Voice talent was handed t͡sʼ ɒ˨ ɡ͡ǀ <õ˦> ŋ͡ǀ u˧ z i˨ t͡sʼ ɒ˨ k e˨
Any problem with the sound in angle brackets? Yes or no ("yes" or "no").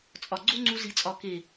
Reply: yes